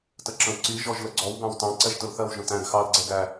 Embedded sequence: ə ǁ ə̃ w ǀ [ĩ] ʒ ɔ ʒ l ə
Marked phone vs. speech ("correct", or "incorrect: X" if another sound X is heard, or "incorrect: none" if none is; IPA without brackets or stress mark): incorrect: i